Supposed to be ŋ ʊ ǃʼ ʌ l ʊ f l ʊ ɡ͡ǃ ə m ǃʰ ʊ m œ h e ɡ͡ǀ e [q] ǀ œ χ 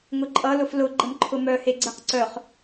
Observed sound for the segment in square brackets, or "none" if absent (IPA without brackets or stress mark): q